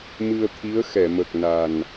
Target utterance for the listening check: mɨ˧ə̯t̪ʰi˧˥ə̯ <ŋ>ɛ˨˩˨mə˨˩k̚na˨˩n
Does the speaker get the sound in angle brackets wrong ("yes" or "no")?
yes